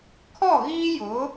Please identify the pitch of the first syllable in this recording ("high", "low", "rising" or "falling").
falling